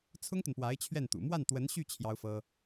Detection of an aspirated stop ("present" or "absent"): present